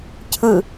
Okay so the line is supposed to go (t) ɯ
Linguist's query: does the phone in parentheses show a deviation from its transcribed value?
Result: yes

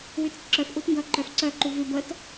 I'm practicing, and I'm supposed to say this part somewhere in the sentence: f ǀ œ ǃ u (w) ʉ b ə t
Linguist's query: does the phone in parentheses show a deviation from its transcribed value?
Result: yes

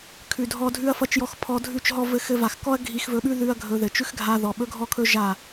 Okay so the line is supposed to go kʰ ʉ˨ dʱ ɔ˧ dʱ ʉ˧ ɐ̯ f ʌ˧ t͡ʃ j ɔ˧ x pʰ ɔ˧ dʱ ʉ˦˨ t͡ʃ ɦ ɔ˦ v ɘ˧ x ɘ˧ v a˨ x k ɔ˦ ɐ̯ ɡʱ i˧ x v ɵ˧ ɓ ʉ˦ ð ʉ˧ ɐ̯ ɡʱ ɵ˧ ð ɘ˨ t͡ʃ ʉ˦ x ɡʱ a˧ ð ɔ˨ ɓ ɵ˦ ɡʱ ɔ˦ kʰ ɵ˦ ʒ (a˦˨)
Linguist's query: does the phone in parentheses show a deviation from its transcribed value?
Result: no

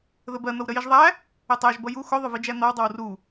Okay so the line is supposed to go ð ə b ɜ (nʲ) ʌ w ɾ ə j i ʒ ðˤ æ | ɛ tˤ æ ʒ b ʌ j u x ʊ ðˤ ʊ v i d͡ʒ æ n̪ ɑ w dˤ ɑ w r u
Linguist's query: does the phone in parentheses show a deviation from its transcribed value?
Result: yes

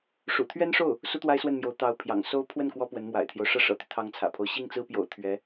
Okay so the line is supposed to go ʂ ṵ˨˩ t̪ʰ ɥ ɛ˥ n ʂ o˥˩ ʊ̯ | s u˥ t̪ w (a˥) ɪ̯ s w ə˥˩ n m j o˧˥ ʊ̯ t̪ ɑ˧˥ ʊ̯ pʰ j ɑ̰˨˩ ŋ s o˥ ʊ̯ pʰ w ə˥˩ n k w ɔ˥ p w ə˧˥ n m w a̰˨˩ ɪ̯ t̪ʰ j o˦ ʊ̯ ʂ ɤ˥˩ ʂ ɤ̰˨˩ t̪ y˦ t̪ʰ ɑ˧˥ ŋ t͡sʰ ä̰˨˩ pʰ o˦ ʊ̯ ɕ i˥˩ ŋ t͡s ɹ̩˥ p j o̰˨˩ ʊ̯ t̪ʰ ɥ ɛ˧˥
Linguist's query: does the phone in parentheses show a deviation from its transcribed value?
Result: no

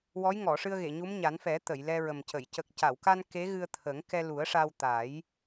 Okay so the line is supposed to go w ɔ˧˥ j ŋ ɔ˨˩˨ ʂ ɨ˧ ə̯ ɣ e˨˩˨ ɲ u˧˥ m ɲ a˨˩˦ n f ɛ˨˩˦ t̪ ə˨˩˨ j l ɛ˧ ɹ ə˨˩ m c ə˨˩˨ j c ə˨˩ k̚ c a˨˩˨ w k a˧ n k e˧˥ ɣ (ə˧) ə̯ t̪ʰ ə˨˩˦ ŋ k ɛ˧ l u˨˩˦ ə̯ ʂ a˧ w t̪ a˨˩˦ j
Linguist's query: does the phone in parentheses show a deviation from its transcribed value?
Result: yes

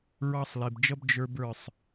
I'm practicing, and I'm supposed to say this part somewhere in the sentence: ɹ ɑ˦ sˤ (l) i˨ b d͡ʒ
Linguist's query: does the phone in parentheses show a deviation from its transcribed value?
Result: no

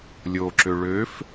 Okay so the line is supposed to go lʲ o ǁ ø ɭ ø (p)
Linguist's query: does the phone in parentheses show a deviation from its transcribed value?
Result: yes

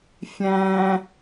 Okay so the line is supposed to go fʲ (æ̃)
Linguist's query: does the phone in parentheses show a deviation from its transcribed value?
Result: no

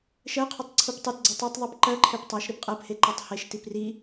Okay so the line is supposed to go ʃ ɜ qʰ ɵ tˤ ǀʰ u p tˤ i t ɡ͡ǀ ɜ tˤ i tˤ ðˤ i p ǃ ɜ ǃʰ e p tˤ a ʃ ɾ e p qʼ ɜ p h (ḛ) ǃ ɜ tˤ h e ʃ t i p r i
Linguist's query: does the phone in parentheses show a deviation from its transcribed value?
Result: yes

